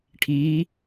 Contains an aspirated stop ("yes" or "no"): yes